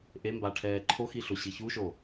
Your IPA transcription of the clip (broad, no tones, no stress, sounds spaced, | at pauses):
ʔ e m b a ʈʰ ɛː ǃʰ o x i ɬ o ɕ i ç u ʃ o